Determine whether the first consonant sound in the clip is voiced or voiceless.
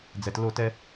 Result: voiced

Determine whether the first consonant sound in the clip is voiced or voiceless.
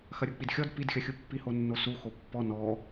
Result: voiceless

